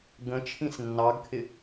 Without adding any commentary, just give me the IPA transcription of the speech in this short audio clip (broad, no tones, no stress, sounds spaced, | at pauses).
ɡ ə̃ t͡ʃʰ ĩ s nː ɑ ɡ kʰ ɪ